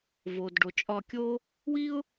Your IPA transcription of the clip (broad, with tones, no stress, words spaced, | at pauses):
vo˨dɖo˨ t͡ʃʼɒ˧kʲo˦ | wi˦ʊ̯